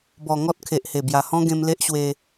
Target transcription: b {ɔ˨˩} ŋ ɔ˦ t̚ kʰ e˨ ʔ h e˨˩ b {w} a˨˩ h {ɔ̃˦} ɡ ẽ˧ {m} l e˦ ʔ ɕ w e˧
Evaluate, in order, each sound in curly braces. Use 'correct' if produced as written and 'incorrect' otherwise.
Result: correct, incorrect: j, correct, correct

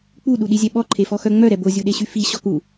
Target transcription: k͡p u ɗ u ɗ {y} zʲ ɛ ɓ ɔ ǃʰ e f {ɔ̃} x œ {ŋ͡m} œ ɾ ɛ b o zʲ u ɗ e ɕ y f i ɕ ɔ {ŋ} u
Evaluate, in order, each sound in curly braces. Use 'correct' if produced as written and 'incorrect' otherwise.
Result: incorrect: i, incorrect: ɔ, correct, incorrect: k

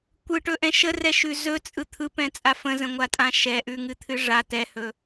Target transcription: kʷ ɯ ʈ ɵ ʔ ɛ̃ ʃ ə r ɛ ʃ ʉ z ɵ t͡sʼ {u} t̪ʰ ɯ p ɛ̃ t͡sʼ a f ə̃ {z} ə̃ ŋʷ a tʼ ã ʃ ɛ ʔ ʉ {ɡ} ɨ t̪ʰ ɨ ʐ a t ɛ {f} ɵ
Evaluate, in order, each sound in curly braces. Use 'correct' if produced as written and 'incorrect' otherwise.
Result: incorrect: ɯ, correct, incorrect: ŋ, incorrect: h

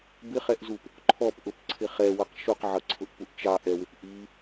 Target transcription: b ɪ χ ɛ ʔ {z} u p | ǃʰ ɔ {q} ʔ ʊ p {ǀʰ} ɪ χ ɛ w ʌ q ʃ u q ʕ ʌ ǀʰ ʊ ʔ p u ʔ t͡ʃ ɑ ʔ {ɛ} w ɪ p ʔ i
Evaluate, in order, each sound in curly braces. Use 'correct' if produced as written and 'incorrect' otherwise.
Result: correct, incorrect: p, correct, correct

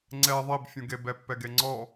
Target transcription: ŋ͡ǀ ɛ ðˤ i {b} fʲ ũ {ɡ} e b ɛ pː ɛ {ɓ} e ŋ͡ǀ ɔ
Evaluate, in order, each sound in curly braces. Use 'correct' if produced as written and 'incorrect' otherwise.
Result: correct, correct, incorrect: ɡ

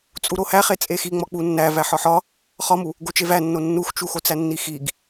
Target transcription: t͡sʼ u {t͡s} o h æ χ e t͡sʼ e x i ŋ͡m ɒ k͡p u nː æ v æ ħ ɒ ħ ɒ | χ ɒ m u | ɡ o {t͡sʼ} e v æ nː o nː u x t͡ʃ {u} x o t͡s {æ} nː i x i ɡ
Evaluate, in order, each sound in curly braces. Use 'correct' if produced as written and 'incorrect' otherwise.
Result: incorrect: ɾ, incorrect: t͡ʃ, correct, correct

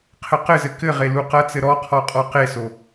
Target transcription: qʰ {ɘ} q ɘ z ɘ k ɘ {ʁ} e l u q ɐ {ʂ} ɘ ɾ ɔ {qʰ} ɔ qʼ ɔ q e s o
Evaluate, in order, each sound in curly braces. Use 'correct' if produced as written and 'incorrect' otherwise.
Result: correct, correct, incorrect: t͡s, correct

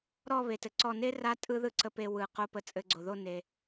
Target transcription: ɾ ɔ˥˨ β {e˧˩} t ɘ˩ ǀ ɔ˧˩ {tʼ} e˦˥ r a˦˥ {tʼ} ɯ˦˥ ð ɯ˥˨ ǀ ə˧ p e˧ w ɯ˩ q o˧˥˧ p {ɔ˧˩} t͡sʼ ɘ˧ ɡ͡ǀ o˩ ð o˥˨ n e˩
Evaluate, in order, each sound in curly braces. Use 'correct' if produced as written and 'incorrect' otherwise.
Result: incorrect: e˩, incorrect: n, correct, incorrect: ə˧˩

